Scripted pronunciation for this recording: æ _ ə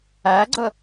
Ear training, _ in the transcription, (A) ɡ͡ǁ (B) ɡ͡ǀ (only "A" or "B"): B